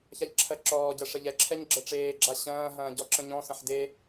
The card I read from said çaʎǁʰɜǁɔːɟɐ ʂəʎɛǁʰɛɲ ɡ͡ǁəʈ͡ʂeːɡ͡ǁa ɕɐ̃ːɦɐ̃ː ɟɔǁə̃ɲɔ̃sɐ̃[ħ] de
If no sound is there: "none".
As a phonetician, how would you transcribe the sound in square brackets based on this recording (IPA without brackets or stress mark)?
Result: ħ